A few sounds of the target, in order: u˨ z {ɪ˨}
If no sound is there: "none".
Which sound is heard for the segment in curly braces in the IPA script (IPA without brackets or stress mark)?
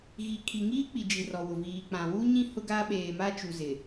ɪ˨